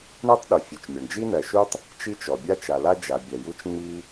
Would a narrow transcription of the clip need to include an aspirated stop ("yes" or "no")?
no